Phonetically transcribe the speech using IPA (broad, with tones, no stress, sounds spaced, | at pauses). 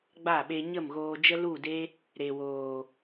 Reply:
ɡ͡b a˦˨ ɓ e˧ ɲ ə˦˨ m ɣ oː˧ d͡ʒ ə˧ l u˦˨ d e˦ | ɾ e˨ w oː˨